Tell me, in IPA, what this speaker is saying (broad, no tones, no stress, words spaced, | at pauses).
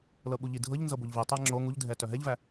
lɤɓuʎidʱɤʎ nzɤboʎvi tˤæŋ͡ǁo ŋuʎdʱɛtœ ɦɛʎvæ